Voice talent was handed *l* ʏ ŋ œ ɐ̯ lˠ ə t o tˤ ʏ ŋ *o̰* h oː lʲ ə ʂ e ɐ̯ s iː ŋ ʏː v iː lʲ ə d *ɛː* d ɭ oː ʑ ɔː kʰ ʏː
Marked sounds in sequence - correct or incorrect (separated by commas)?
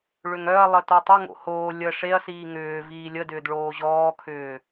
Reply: incorrect, correct, incorrect